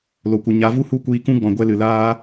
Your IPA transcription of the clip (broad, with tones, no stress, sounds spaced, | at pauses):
l o˨ kʷ ɨ˨ ɲ a˨˦ v u˦ h u˦˨ kʷ iː˧ k ũ˦ ɡ͡b ɔ̃˨ ɡʷ ɛ˧ l ɨ˨ l aː˦